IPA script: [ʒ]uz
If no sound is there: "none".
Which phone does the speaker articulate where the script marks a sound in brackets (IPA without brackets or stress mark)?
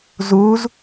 z